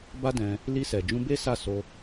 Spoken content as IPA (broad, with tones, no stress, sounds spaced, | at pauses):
b a˦ d ɛ̃˧ | l i˧ s ɛ˨ d͡ʒ ũ˧ b e˦ s a˦˨ s o˧